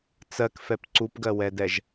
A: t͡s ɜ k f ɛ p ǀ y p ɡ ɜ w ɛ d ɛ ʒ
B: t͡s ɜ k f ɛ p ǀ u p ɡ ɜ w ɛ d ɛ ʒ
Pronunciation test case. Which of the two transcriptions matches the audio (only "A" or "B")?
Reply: B